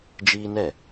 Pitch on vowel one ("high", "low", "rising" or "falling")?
high